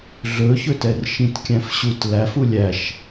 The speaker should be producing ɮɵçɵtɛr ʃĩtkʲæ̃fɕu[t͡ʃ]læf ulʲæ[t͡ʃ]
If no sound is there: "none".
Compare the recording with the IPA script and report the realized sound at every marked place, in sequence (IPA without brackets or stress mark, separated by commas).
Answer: t, ʃ